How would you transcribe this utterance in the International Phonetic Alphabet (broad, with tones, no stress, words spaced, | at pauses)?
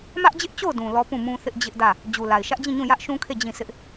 mä˦ʔd͡ʑɪ˦ʔt͡ɕo˦˨ʊ̯dũ˨ lɔ˦ pũ˦˨mũ˦ θɪ˦ʔ d͡ʑɪ˦ʔdä˦˨ | d͡ʑu˨la˨ɪ̯ʃä˦ʔd͡ʑĩ˦˨ ɲũ˦˨jä˦ʔʃũ˦kʰe˦˨ d͡ʑĩ˦˨sʰɪ˦ʔ